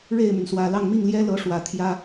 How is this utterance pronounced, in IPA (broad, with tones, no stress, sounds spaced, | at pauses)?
ɻ e˥˩ ɪ̯ m y˩ n s w ä˨˩ l ɑ˥˧ ŋ m i˥˩ ŋ l j ɛ˥ l ɤ˧˥ ʂ w ä˨˩ t̪ʰ j ä˥